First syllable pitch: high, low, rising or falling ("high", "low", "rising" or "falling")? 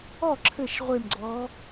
falling